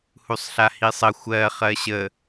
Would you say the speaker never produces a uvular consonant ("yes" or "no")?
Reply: no